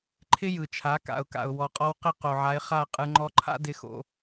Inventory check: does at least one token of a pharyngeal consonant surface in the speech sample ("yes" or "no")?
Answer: yes